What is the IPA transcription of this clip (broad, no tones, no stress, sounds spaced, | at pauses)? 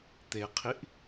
t̪ e qʰ i ʔ